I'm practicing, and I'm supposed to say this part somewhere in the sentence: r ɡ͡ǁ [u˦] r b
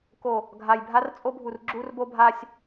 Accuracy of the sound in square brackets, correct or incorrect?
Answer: correct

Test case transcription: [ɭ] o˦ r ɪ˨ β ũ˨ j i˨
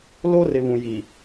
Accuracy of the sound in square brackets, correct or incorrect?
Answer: incorrect: l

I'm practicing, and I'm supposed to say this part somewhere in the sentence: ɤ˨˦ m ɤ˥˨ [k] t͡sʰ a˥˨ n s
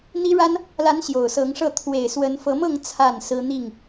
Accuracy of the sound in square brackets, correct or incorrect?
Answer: incorrect: ŋ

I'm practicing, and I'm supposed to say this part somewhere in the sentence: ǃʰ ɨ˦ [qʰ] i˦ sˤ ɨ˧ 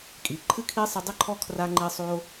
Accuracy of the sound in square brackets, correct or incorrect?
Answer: incorrect: kʰ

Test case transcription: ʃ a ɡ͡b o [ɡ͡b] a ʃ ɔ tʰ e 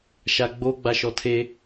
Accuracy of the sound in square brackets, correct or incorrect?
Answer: correct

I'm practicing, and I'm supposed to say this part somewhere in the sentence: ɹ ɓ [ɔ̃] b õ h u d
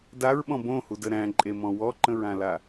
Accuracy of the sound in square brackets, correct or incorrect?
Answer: correct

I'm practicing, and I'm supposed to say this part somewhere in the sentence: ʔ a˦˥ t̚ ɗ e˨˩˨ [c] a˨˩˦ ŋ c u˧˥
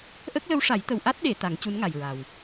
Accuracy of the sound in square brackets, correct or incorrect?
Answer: incorrect: t̪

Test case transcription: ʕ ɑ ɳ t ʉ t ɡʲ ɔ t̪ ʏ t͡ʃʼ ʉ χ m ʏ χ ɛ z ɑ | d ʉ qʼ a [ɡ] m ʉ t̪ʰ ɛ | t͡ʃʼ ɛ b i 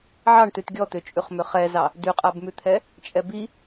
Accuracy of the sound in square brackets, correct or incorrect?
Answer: incorrect: b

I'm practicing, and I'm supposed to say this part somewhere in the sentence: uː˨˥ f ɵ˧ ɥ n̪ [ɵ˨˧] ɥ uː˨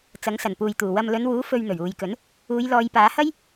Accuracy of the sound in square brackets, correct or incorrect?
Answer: incorrect: ɵ˨˩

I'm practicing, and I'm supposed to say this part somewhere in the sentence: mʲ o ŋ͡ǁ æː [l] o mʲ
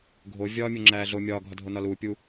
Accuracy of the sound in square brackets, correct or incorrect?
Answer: incorrect: ɮ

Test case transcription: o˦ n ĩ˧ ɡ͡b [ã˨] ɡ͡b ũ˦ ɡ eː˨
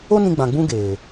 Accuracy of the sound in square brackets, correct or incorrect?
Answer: correct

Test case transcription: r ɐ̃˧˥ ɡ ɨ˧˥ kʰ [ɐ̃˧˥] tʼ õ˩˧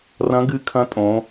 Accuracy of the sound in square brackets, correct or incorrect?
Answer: correct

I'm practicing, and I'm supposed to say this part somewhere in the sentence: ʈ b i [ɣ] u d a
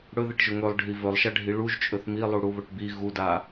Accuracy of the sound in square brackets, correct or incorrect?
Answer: correct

